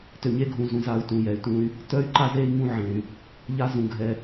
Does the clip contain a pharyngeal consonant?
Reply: yes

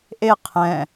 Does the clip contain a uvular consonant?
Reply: yes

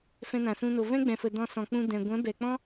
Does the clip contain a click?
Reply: no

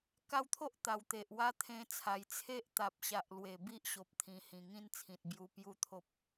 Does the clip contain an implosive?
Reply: no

